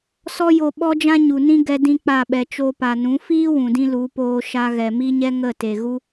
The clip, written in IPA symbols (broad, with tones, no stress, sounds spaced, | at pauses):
s ɔ˦ j o˧ ɓ ɔ˦ d͡ʒ ã˦ ɲ u˨ n ĩ˦ ɡ ɛ˦ d ĩ˦ k͡p a˦˨ ɓ ɛ˨ t͡ʃ o˧ p a˨ n ũ˨˦ f iː˦ w ũ˨ d ĩ˧ l u˨˦ p oː˧ ʃ a˧ ɣ ɛ˨ m i˦ ɲ ɛ˦ ŋ ə˦˨ t e˨ ɣ u˦